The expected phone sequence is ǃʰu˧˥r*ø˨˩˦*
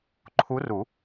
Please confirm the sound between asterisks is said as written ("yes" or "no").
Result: no